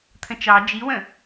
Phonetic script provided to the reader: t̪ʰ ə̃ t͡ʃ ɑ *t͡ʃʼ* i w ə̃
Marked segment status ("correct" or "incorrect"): incorrect